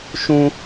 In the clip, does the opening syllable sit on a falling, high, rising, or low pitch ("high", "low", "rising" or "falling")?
high